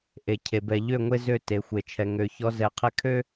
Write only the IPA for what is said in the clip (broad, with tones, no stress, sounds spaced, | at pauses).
ʔ e˨ cʰ e˨ b ɛ˨ ʎ ø˦˨ ŋʷ e˦ z ø˦˨ t e˨ xʷ e˨ t͡ʃʰ ɛ˨ ŋ ø˨ ç ɔ˦ z ɛ˨ qʰ ɛ˦ kʰ ø˦